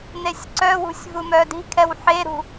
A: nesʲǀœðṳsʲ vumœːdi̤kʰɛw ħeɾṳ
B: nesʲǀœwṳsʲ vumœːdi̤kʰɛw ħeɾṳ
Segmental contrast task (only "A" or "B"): B